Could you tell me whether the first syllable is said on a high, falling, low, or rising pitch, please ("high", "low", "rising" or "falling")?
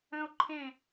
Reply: high